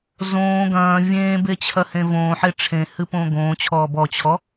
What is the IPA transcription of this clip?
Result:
z õː ɡ ɐ̃ː vʲ ẽː b e t͡ɕʰ ɐ h ẽ v õː ħ e ʈ͡ʂʰ ẽ h ɨ p õː ɡ õː t͡ɕʰ ɔː b ɔ t͡ɕʰ ɔ

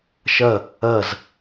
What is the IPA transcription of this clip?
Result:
ʃ ɐ | ɐ z

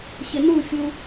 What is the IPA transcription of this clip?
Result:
ɕ ɪ n u fʲ u

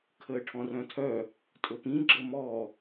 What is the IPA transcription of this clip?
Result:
kʰ əː ʈʰ ɔ̃ r œ̃ tʰ œ | tʼ ɵ p ĩ ɡ͡ǁ ə m ɔ

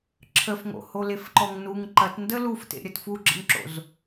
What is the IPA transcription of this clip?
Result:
ǁʰ ə f ŋ o̰ h o l e f ǃ ɔ ŋ n u ŋ ǃ ɐ t n d ə l u f t ḛ ɾʲ ɐ t f u ɡ͡ǁ ə̰ n ǁ o̰ z

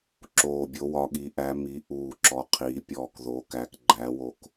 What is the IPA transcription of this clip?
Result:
ǁ oː˨˩ bʲ o˩˧ w ɒ˩˧ ɠ i˩˧ ʔ æ˩˧ m i˩˧ ʔ uː˨˩ ǁ ɔ˩˧ qʰ iː˩˧ pʲ ɔː˨˩ k ð oː˩˧ k æ˩˧ k ɡ͡ǃ æ˩˧ w o˨˩ k

